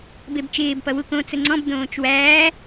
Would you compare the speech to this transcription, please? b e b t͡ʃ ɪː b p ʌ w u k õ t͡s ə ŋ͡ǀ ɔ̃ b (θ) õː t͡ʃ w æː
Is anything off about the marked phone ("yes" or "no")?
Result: yes